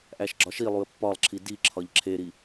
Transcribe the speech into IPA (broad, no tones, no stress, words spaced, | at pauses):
ʔæʃɡ͡ǁɒʃilˠuə̯ pːɒlˠǁʰi diǁʰɒʎ ǁʰeɾi